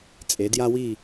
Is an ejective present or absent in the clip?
present